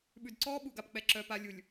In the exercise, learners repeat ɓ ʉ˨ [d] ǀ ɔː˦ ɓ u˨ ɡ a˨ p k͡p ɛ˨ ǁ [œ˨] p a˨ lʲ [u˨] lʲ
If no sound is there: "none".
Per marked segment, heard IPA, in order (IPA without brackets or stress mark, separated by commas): d, œ˨, u˨